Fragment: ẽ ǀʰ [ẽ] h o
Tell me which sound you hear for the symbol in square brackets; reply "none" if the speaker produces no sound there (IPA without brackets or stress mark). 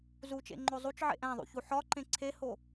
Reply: e